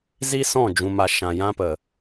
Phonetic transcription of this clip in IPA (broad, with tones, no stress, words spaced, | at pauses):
zi˦sɔ̃˦˨ d͡ʒũ˨ma˨ ʃã˨jã˦pə˨